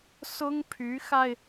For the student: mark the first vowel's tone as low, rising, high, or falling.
high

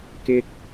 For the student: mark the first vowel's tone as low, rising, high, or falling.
high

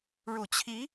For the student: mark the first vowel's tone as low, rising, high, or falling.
low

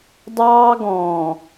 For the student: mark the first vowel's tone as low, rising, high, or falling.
high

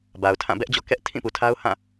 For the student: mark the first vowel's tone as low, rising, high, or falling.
low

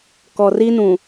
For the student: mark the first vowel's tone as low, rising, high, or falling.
low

